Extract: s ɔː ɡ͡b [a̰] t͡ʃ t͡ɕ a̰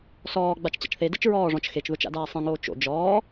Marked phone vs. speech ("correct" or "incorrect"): incorrect